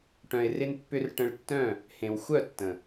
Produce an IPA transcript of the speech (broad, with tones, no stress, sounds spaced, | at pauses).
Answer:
ʈ œ̃˨ ɪ̯ r ɪ˧ n pː ʏ˧ r ʈ ə̃˧ ɭ tː œ̃˦˨ | h ẽ˨ w xʷ œ˦˨ tː ə̃˨